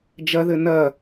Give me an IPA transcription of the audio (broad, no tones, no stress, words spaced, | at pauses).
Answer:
d͡ʒɐðɘ nɐ